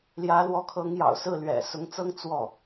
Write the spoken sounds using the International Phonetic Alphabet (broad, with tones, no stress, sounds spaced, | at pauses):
l j ä˧˥ l w ɔ˧˥ kʰ ɤ˧˥ ŋ j ɑ̰˨˩ ʊ̯ s ɹ̩˥˩ l ɥ ɛ̰˨˩ s ʊ˧˥ ŋ t͡s ɤ˥ ŋ t͡s w ɔ˥˩